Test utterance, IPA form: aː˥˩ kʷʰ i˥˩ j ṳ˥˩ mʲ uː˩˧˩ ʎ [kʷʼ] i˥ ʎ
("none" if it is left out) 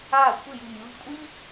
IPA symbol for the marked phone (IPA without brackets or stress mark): kʷʼ